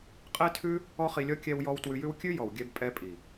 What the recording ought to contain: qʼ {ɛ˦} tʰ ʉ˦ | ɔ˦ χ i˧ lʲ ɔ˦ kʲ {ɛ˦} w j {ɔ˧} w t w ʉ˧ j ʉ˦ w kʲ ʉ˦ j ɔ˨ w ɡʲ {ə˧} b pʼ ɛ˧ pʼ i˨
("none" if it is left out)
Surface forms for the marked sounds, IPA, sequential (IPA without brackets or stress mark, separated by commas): ɛ˦, ɛ˧, ɔ˧, ɛ˧